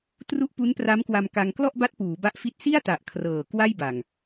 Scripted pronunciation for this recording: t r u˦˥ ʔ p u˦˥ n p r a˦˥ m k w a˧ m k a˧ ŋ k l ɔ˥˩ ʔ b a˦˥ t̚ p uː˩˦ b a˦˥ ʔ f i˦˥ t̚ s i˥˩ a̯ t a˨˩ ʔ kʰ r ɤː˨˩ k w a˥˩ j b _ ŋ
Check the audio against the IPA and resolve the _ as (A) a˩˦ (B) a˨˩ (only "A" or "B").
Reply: B